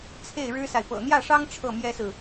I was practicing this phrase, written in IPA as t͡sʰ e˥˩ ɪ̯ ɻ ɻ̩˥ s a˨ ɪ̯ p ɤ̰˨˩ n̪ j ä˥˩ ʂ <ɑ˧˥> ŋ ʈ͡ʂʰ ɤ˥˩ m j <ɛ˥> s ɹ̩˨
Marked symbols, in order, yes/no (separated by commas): no, yes